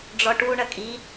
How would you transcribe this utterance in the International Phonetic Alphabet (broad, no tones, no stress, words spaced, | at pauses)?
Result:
ɖ͡ʐɔʈu ɳɐkʼi